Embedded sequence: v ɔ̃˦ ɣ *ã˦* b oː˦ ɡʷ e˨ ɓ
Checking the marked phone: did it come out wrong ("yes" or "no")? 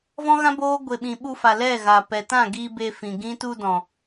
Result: no